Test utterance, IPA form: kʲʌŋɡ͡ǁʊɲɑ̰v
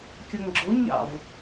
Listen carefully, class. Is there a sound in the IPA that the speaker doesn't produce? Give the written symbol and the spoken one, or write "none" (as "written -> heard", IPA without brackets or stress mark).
none